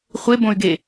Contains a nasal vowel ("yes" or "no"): yes